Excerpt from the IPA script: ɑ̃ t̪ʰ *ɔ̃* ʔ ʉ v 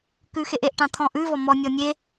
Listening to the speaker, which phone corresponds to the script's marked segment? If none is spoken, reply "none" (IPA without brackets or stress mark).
ɔ̃